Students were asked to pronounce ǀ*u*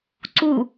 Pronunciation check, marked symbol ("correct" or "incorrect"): correct